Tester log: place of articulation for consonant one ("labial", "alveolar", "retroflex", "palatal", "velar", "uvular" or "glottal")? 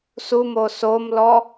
alveolar